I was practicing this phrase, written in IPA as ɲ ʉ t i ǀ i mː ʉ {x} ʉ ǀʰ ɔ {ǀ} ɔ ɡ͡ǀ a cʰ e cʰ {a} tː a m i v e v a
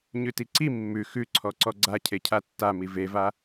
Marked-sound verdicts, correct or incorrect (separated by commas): correct, correct, correct